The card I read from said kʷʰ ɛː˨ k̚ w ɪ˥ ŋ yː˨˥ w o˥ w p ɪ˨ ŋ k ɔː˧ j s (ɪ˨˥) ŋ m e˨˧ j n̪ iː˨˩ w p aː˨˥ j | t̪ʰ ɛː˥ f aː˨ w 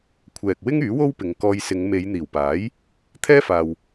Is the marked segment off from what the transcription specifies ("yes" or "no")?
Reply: yes